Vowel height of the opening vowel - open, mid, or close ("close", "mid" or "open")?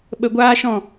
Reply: mid